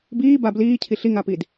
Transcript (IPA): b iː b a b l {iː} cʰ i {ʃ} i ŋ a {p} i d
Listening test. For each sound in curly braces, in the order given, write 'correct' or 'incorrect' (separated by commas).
correct, incorrect, correct